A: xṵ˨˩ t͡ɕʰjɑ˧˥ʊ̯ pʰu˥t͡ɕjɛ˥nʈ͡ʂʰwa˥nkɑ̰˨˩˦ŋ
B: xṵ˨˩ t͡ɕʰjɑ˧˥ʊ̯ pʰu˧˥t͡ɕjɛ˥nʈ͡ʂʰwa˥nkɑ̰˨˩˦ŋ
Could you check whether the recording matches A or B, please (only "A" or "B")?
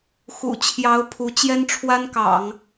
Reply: B